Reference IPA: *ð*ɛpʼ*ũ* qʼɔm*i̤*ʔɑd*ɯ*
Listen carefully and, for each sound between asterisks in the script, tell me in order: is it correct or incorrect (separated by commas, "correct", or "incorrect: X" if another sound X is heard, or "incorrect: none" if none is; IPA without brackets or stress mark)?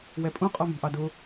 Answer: incorrect: w, correct, correct, incorrect: ʊ